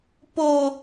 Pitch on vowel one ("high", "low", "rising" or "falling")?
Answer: high